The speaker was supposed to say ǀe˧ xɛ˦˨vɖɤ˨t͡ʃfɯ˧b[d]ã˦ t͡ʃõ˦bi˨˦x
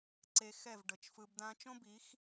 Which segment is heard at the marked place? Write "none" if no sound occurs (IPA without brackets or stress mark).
d